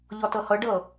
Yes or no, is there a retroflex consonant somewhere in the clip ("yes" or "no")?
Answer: yes